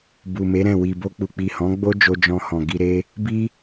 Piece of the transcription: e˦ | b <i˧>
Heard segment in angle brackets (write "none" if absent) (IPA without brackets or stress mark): i˦